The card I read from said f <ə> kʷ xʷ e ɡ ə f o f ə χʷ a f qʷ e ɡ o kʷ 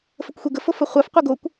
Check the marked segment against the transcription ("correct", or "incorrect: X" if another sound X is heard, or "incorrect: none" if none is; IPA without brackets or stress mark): correct